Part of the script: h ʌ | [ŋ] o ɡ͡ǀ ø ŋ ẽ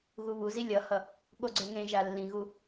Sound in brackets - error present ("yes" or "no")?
yes